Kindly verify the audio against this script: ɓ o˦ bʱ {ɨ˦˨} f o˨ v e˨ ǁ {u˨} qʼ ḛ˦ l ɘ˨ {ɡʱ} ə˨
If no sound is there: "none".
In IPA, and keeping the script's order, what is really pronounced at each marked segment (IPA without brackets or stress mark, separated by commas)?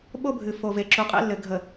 ɨ˨, u˨, ɡʱ